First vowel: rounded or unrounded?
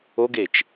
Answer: rounded